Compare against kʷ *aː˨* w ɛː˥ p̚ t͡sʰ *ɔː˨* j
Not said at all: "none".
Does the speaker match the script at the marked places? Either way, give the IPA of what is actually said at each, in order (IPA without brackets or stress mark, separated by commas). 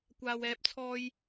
aː˥, ɔː˥